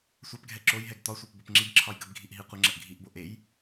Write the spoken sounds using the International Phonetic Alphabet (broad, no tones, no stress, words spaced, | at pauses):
sʷapɡʱɛ ǁojɦɛɡ t̪ɒsʷep bopŋ͡ǁibǁʰɒj ɡəbɡʱiʔ ɦiqʷəŋ͡ǁəʔ ɡʱiʔbo ʔej